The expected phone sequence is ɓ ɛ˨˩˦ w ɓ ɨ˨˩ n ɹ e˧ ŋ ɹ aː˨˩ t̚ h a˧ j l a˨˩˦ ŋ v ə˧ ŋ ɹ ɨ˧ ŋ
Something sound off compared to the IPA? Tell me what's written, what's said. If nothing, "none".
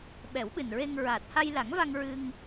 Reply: ə˧ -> a˧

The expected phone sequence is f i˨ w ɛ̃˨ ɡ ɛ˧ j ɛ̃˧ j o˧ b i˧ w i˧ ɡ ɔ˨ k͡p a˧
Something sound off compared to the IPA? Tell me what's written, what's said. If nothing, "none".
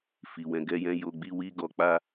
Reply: b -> ɡ͡b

